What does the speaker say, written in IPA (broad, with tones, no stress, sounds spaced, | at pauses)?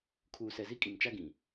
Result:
kʰ uː˨ s ɛ˨ z i˦ kʼ i˨ m t͡ʃ a˦ ɡ ĩ˨